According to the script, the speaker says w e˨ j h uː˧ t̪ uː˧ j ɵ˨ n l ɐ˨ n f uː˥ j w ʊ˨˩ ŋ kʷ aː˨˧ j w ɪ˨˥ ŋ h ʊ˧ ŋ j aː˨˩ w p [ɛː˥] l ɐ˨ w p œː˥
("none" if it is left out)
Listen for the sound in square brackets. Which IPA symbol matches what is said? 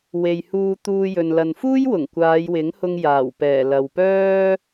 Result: ɛː˨˩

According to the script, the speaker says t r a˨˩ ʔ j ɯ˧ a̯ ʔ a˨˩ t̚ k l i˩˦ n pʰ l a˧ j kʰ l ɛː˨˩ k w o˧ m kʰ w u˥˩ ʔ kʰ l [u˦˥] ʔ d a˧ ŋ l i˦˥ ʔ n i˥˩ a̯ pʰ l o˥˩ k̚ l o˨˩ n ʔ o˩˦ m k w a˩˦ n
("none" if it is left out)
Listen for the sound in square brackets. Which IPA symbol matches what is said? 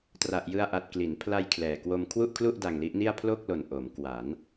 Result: u˥˩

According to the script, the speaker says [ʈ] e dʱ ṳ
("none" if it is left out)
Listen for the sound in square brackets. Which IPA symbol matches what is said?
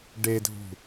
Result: ɖ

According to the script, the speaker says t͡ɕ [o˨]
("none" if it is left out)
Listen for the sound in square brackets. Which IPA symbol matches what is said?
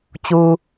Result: u˨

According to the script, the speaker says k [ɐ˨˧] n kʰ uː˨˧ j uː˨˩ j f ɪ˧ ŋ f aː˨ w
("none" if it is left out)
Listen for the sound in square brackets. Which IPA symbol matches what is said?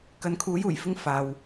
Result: ɐ˨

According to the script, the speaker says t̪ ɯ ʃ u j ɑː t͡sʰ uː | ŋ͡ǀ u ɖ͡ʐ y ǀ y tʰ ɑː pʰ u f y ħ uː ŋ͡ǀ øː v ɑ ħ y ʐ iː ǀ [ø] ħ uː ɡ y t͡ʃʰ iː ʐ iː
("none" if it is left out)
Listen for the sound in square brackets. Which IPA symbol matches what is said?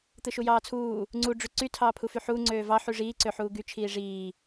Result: ø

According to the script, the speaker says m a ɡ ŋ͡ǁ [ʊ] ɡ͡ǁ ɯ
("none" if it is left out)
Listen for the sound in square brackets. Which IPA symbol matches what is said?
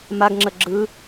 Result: ə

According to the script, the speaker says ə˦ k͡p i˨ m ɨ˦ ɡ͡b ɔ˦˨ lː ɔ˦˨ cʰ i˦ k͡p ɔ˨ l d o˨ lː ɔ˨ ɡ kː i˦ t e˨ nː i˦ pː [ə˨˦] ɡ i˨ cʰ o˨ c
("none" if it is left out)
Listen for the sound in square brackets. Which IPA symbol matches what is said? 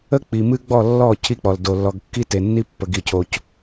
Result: ə˨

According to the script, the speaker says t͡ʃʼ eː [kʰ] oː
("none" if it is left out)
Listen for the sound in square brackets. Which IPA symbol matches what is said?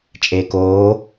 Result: k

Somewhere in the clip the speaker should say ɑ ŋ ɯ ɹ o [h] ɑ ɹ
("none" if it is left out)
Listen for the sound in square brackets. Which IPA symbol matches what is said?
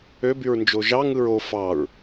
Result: f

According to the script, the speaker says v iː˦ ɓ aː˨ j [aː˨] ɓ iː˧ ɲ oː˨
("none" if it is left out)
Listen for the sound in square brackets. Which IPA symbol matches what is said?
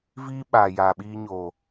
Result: aː˨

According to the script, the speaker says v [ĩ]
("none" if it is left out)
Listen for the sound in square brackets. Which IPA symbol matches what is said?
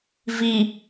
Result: i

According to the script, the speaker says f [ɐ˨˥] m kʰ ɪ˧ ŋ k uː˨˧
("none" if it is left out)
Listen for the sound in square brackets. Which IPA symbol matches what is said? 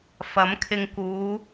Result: ɐ˨˥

